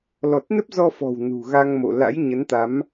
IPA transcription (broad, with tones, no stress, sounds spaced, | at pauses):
l ɔ˨˩ t̚ n ə˦˥ p̚ z ɔ˧ f ɔ̤˨˩ w n ṳ˨˩ ɣ a˧ ŋ m o̰˧˨ l a̰˧˥ j ɲ ə˨˦ n t̪ a˨˦ m